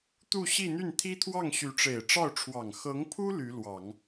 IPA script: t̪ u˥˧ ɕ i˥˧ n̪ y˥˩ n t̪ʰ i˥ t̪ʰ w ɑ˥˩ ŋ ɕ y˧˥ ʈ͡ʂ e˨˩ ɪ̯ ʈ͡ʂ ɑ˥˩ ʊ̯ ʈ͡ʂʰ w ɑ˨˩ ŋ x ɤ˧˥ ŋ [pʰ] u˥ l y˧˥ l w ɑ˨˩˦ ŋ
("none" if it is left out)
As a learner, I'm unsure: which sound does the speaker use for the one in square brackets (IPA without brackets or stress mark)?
pʰ